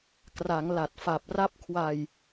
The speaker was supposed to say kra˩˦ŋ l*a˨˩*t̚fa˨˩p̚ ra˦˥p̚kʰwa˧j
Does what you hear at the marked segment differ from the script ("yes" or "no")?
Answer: no